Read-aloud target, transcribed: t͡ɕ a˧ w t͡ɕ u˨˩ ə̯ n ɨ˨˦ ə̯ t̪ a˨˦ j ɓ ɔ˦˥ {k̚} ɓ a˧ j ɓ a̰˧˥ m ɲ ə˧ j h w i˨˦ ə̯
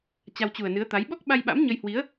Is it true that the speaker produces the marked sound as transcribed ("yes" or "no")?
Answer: yes